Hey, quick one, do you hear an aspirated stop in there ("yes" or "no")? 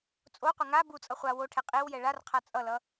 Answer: yes